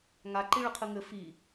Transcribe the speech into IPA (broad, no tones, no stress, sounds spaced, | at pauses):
ŋ a ǃ i ɭ ɨ qʰ ɨ ŋ ɘ f i